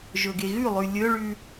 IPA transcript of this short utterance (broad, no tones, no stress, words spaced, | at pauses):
ʒɵɡeɣʉlˠʉ lʲɵɭʉ